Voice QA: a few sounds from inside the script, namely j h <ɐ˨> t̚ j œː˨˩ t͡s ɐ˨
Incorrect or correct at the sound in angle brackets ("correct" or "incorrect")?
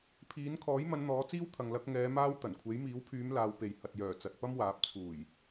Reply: correct